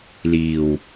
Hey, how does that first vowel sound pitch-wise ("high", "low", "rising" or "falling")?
low